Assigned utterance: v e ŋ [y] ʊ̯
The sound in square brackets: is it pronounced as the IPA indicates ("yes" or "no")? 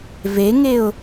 no